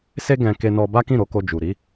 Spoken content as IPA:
s e˧ ɡ ɛ̃˧ k e˧ n ɔ˧ b a˦ k ĩ˦˨ ɾ o˧ k o˧ d͡ʒ u˨ ɾ i˨˦

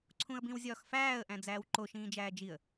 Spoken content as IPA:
ǀʰ ũ ə̯ b ĩ w zʲ ɒː x f æː ə̯ ʔ æ̃ d͡z æː w ǃ o ʃ ĩː d͡ʒ æː d͡ʒ i ə̯

